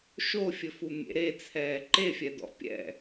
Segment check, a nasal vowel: absent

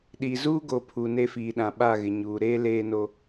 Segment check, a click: absent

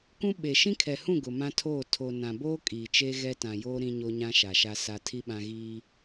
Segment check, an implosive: present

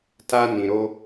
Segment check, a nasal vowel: present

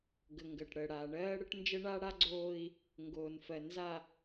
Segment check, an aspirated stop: absent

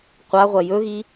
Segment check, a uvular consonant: present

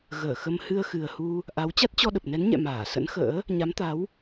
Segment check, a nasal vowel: absent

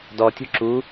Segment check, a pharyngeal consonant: absent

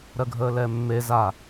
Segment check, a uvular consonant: absent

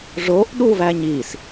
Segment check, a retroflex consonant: present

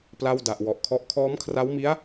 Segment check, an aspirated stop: present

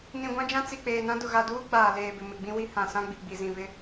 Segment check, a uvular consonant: absent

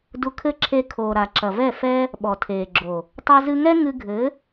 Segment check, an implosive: present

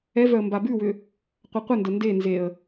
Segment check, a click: absent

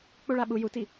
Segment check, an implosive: present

